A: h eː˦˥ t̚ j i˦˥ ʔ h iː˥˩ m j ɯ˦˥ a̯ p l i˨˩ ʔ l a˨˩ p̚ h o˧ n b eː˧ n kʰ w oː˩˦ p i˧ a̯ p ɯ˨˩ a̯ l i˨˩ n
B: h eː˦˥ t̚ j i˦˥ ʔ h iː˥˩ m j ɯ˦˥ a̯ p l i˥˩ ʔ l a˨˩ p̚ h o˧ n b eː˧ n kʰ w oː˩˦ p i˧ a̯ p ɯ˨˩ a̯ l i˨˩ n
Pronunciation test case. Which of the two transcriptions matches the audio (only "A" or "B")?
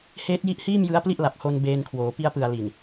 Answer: B